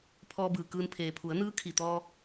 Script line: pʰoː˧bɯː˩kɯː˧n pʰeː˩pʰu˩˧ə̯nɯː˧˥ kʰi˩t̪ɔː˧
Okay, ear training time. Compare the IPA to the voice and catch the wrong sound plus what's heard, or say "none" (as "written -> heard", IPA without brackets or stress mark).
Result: oː˧ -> ɔː˧